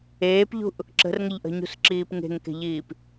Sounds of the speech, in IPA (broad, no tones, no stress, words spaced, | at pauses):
eːpʎṳʔ | ǁə̤rŋəʎʔə̤ɲṳs ǁiːpŋe̤ŋke̤ʎiːp